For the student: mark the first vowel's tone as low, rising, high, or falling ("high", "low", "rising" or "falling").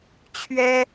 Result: high